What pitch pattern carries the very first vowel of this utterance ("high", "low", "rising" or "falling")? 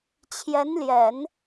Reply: rising